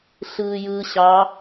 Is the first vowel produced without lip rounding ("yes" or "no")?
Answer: yes